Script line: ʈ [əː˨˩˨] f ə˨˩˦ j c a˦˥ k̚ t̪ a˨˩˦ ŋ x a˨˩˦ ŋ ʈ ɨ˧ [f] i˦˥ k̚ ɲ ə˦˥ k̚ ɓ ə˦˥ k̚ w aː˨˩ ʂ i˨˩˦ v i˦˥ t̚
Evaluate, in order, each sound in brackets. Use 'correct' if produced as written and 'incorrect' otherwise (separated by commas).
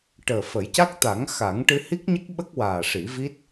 incorrect, incorrect